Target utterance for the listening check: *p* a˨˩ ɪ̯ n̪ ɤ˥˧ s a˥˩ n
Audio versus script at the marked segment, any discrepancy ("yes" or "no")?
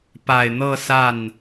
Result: no